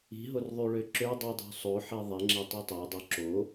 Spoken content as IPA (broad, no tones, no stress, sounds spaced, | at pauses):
i̤ ɦ o r ðˤ y ɭ ø ǁ ø dˤ i dˤ o̤ sˤ o ħ i ðˤ e ŋ͡ǁ e tˤ i tˤ æ dˤ o ǁ o